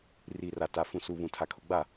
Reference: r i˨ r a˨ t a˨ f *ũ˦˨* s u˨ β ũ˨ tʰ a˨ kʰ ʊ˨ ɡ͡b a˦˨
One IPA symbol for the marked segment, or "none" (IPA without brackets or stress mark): ũ˨